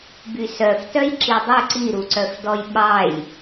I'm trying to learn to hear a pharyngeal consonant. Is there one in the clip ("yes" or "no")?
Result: no